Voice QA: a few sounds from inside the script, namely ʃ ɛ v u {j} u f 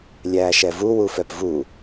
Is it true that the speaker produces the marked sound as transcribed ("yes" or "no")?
no